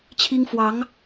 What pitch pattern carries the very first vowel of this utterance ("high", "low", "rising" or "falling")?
high